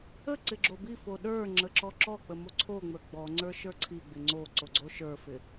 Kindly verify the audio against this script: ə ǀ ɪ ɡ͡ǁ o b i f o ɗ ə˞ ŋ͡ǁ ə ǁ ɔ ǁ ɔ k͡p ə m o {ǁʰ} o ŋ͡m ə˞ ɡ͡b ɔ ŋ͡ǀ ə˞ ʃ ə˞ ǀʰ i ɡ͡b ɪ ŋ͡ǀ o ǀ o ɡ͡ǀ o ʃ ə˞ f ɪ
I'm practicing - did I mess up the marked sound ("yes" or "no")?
yes